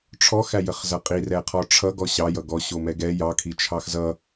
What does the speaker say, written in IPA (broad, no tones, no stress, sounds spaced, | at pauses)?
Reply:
ʈ͡ʂʰ ɔ x æ j ə χ z ʌ qʼ i r ɛ qʰ ɔ ʈ͡ʂʰ ʌ ɡ ɔ ɕ ɑ j ʌ ɡ ɔ ɕ o m ɛ ɡ ɛ j ɑ kʰ i t͡ʃʰ ɑ x z ʌ